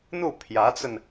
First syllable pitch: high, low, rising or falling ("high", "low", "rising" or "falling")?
falling